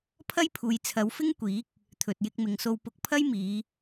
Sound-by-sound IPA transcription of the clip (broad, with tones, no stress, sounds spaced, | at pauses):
pʰ ɐ˥ j pʰ uː˨ j t͡sʰ ɐ˨˧ w f ɪ˥ ŋ kʷ iː˨˥ k̚ | t̪ʰ ɵ˨ t̚ j ɪ˧ k̚ m ɪ˨ ŋ s o˧ w p ʊ˧ k̚ pʰ ɐ˥ j m iː˨˧